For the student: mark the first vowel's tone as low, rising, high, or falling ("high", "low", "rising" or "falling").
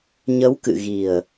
rising